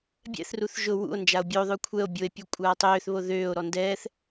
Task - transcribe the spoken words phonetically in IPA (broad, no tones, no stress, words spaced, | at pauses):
bʲɛ̰θruθ ʒʊ wṵo̯ nd͡ʒao̯bʲoðˤʊ kʷʰɛo̯ bʲoe̯pʲu kʷʼaːtˤøːθβo ðøːo̯ɾɔ ndɛːθ